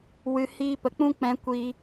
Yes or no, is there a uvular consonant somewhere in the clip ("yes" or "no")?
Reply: no